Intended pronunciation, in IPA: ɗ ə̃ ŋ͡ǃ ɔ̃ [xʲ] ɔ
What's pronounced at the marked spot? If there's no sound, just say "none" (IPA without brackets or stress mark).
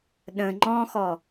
x